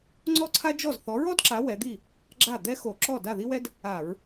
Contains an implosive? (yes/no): no